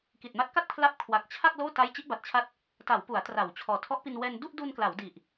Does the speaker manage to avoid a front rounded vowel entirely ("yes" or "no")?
yes